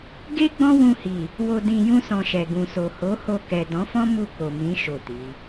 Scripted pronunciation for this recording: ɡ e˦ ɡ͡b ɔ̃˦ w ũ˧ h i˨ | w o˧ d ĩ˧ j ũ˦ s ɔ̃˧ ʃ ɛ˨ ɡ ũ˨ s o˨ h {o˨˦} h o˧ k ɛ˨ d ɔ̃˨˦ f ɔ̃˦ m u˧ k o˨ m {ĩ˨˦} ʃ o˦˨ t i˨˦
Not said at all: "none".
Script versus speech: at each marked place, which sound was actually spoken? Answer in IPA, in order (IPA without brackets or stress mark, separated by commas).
o˨˦, ĩ˨˦